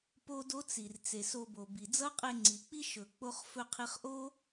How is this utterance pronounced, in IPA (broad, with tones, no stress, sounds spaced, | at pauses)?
p o˦ d o˦ t͡s i˨ r t͡s e˨ s o˧ b o˨ b i˨ d͡z ʌ˦ qʼ e˧ ŋ͡ǀ i˨ k͡p i˦ ʃ ɵ˨ k͡p o˦ χ f ɵ˧ qʰ i˧ χ ʔ o˦